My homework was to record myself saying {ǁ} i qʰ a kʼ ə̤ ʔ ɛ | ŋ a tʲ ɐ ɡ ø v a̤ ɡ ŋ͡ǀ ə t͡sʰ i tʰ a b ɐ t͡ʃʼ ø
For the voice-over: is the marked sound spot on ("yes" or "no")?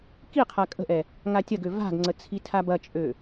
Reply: no